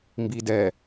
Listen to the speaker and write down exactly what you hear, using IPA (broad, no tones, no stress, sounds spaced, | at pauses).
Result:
m b i d ɛ